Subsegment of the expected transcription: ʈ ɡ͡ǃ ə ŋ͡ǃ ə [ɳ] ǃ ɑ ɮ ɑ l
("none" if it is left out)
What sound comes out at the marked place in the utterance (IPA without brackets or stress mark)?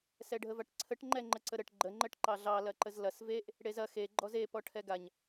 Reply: ʈ